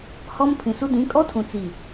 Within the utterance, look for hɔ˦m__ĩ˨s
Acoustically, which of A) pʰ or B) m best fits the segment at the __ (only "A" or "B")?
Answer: A